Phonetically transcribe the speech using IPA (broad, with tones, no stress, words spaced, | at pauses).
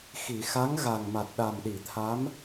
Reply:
xi˨˩˨ xa˧˥ŋɣa˨˩ŋma˨˩t̚ ɗa˨˩mɗi˨˩˨t̪ʰa˧˥m